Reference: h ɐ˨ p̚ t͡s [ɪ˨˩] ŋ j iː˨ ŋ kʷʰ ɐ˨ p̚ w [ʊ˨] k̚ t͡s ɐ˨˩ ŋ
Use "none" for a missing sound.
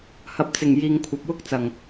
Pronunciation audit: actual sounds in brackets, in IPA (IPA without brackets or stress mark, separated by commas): ɪ˨˩, ʊ˥